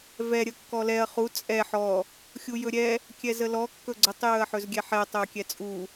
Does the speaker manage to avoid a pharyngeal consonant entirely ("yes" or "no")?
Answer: no